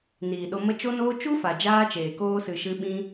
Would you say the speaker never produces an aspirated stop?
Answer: yes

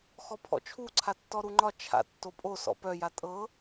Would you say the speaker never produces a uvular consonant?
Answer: yes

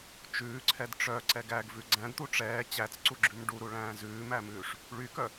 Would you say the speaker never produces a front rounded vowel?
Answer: no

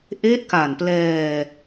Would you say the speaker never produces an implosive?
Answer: yes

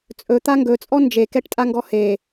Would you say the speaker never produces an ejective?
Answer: no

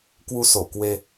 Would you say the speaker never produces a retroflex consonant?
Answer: yes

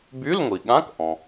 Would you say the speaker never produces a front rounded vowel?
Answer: no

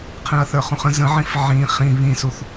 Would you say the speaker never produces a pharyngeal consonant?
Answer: no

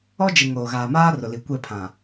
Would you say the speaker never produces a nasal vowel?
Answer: no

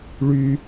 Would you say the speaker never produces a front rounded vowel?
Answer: no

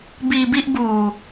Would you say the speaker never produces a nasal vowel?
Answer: yes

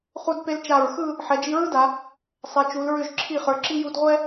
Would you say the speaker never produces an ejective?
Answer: yes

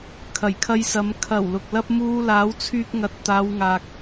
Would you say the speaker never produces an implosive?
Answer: yes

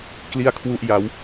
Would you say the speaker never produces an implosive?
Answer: yes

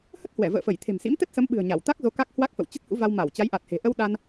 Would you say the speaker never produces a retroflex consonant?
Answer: yes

